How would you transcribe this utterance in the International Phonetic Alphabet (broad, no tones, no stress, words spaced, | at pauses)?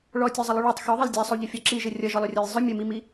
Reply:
ɭɔtʲozˤəlˠʏ ɭutˤ xʏðˤəl dʲæsˤuʎʏfʲɔ ǁiʒɘ rʲʌʒɔlˠʏrʲɔj zˤʏ mʲəmimi